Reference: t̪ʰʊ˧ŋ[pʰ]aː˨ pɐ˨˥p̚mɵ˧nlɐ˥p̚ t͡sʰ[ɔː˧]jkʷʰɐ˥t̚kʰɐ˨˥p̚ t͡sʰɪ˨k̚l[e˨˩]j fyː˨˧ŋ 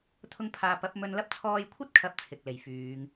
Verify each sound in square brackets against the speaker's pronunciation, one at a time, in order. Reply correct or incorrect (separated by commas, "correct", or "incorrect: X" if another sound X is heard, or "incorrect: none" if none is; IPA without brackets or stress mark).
correct, correct, correct